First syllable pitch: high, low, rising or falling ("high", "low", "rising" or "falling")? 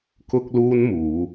high